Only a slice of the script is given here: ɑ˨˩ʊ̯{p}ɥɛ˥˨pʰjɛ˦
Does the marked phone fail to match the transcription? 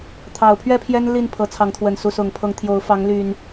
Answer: yes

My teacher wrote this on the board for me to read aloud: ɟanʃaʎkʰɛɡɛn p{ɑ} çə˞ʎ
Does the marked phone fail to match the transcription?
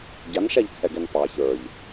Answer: no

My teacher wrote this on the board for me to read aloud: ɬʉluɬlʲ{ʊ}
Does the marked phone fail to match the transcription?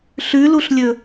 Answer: yes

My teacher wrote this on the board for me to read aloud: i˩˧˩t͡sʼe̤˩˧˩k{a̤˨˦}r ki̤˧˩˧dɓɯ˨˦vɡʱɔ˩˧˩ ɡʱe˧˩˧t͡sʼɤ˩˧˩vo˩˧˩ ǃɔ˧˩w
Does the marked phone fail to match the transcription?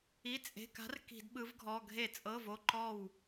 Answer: no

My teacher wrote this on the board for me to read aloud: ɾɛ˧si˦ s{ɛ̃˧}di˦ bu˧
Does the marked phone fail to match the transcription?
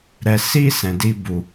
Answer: no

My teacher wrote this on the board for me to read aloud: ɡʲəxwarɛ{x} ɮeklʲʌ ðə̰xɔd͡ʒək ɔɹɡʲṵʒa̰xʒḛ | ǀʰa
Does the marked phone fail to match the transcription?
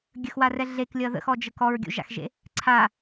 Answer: yes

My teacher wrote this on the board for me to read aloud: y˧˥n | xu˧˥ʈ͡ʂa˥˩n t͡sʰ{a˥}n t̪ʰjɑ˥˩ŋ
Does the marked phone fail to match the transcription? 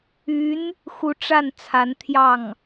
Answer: yes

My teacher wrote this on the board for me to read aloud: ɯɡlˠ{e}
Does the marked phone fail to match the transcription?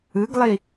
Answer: yes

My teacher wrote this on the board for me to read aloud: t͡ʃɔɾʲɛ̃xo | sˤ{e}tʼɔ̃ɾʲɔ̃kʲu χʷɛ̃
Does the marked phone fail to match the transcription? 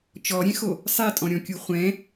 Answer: no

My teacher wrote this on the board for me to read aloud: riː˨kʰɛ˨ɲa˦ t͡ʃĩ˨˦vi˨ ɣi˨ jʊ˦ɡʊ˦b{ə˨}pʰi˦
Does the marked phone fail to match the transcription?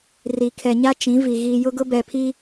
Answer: yes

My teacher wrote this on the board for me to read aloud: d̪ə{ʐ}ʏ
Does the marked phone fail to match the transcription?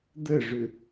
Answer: no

